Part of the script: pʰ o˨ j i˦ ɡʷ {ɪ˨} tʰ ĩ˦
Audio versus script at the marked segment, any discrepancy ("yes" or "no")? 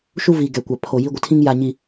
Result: no